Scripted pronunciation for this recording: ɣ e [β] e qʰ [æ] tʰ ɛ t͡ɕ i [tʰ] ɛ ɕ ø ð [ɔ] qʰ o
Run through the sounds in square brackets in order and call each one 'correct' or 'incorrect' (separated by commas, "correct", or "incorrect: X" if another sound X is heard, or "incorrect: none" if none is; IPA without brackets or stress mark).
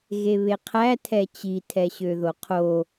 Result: correct, correct, correct, incorrect: o